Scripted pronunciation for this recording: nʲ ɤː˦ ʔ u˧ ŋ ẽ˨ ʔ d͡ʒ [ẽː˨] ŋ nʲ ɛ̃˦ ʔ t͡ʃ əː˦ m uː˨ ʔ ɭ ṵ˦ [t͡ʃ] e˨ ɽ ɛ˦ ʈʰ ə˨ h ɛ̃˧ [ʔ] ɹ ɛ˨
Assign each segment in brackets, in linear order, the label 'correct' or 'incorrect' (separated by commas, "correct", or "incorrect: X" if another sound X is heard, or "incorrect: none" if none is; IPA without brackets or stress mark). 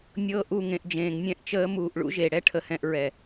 correct, incorrect: ʒ, correct